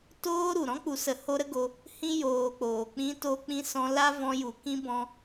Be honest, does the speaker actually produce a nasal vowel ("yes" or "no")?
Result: yes